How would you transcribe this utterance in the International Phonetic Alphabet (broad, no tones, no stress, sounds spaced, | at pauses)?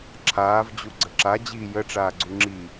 ǁʰ aː v d͡ʑ u ɡ͡ǀ ə ǁ a d͡ʑ iː j ə ʈ͡ʂ aː ɡ͡ǀ u ŋ͡ǁ i